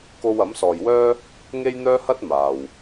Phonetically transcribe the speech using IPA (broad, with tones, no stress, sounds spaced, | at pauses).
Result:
k o˥ w ɐ˨˥ m s ɔː˨ j w œː˥ | ŋ e˥ j n̪ œː˥ h ɐ˥ t̚ m aː˨ w